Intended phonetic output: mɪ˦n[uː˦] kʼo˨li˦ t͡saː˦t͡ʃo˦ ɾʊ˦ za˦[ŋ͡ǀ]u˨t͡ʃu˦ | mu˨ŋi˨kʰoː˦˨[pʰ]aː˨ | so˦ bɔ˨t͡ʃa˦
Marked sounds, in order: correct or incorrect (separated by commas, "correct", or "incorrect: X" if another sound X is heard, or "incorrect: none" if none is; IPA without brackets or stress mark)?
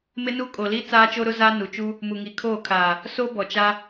incorrect: u˦, incorrect: n, incorrect: kʰ